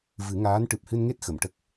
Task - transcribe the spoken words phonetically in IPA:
v ɨ˨˩˦ ŋ aː˧˥ n ʈ ɨ˨˩ p̚ h ɨ˧ n ŋ e˦˥ t̚ x ə˨˩˨ m ʈ ə˦˥ k̚

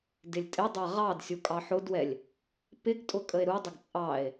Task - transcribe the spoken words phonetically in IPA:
d ɪ lʲ tʼ ɪ dˤ æ ʁ ɑ d sʲ u kʼ ɑ ħ ʊ d w ɛ lʲ | p ɪ ɡ tʼ ʊ kʼ ə e̯ ɾ u dˤ ə ɡ t͡sʼ ɑ e̯

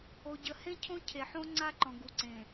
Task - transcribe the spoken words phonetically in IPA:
o˨ ɟ ə˨ h ẽ˦ cʰ õ˦ cʰ e˨ ħ õ˦ ŋ͡ǀ a˦ ǃ ɔ̃˨ ɡ u˨ ǀ ẽ˨

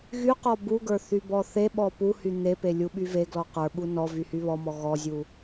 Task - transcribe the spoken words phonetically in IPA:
ɣ y q ɔ b u ɡ ə˞ θ y b ɔ θ e ɓ ɔ p u h y n̪ e p e lʲ u ɓ y v e ɡ l ɔ q ə˞ ɓ u n ɔ v y h y β ɔ m ɔ ɣ ɔ zʲ u

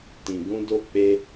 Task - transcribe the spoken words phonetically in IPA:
t ĩ˨ ɡ ũ˧ d o˧ k͡p e˧

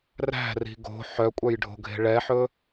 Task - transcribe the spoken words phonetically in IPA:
r æ̤ r i̤ ɡ o̤ ħ œ kʷʼ œ j ɖʱ o̤ ɡʱ e̤ ɭ ɛ ħ ɵ

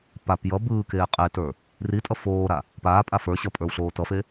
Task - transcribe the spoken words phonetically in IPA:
p a p j ʌ b ɯː k eː qʼ e t ə˞ | r i tʼ ʌ f oː ɾ a | p aː pʼ a f ə˞ ɕ ʌ pʼ ə˞ w ɬ oː t ʌ f e

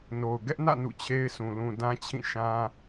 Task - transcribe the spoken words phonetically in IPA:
n o˨ ʊ̯ ɡ ɛ˦ ʔ n ä̰˦˨ n ṵ˦˨ t͡ɕʰ e˦ ɪ̯ sʰ ũ˨ l ũ˨ d ã˦ t͡ɕʰ ĩ˦˨ ʃ ã˦

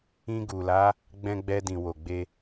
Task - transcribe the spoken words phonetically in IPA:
ĩ˧ ɡ u˨ l a˨˦ | ɡ͡b ɛ̃˧ ɡ͡b ɛ˧ d ĩ˨ w o˨ ɡ͡b e˧

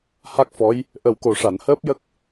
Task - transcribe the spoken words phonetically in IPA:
h a˦˥ k̚ f ɔ˧˥ j | ʔ ə˨˩ w k o˨˩ ʂ a˨˩˨ n h əː˦˥ p̚ j ə˦˥ k̚

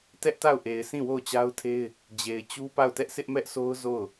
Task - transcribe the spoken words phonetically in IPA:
t ɛ˦ ʔ t a˦˨ ʊ̯ ʔ e˨ ɪ̯ s ĩ˦˨ w o˦˨ ʊ̯ t͡ɕ a˦ ʊ̯ tʰ e˦ ɪ̯ | d͡ʑ e˨ ɪ̯ t͡ɕ u˦ p a˦˨ ʊ̯ t ɛ˦ ʔ sʰ ɪ˦ ʔ m ɛ˦ ʔ sʰ o˦ ʊ̯ z o˦˨ ʊ̯

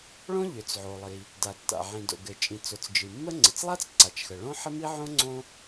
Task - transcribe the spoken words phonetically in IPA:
ɭ õ˥ ʎ ʏ˩ t͡s ʕ o˩ lˠ i˩ | d a˩ tː a̰˩ ʕ ĩ˩ d o̰˩ ɡ ɘ˩ t͡ʃʼ ĩ˩ t͡s o˩ t͡s d͡ʒ ɨ˩ mː ə˥ ŋ͡ǀ ɘ˩ t͡s lˠ a˥ t͡s ǀ a˩ t͡ʃ x ə˩ ɭ õ˥ ħ ə˥ m i˥ ʕ õ˥ ŋ͡ǀ õ˥

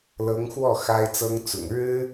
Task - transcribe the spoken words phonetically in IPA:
l ɤ˧˥ ŋ x w ɔ˥˩ x a˥ ɪ̯ t͡s ɤ˥ ŋ t͡s ʊ̰˨˩ ŋ ɻ ɻ̩˥

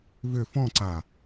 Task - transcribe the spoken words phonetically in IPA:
v ʏ f ɔ̃ ǀ a

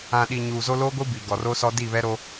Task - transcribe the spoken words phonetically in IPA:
ã˨ ɗ i˨ ɲ uː˨ z o˦ l o˦ ɡʷ i˦ b i˨ ɡ ɔ˨ r o˦ s ɔ˦ d i˦˨ β ɛ˦ ɾ o˦

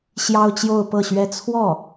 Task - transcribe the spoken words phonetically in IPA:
ɕ j ɑ˥ ʊ̯ t͡ɕ j o˥˧ ʊ̯ p ɤ˥˩ ɕ ɥ ɛ˥ t͡sʰ w ɔ˥˩

